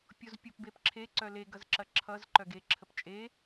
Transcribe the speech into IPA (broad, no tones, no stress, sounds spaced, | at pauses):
pʲ o z pʲ o p b e p ǁʰ e ǀ œ l e ɡ ʌ z ǁ ɐ ǁʰ ʌ z ǃ œ ɡ e ǁʰ ə p t͡ʃʼ e